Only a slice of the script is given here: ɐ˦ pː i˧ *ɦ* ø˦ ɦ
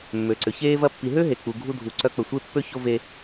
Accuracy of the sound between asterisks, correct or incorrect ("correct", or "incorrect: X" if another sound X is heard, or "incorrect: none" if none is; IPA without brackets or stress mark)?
correct